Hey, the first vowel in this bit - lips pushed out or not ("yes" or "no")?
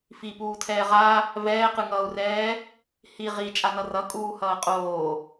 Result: no